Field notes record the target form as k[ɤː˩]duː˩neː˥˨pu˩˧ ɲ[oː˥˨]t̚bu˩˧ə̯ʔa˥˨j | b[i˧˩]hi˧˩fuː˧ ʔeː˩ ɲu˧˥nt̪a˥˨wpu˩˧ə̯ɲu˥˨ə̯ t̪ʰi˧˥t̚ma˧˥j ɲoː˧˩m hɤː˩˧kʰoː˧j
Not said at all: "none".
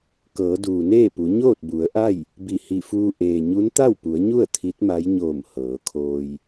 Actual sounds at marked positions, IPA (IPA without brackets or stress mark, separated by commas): ɤː˩˧, oː˥˨, i˧˩